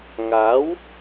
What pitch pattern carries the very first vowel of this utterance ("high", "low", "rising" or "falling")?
rising